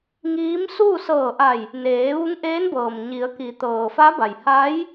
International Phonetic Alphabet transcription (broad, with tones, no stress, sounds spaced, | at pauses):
ŋ iː˧˥ m s uː˥˨ s ɤː˧˩ ʔ a˧˩ j | n eː˩˧ ʋ u˧˥ ŋ ʔ eː˧˥ n b ɤː˩ m ɲ i˩˧ ə̯ k i˩˧ t̪ ɤː˩ f a˧˥ b a˩ j h a˧˥ j